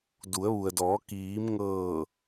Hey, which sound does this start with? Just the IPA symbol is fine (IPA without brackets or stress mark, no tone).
d